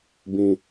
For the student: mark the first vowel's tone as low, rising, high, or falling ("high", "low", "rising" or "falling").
low